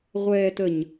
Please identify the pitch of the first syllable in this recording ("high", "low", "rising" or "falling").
high